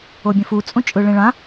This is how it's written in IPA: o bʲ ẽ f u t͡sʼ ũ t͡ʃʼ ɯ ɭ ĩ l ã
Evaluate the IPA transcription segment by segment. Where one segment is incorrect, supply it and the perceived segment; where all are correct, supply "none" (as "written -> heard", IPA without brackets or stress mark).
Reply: l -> ɭ